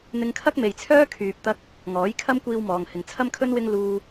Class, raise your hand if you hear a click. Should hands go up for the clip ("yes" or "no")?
no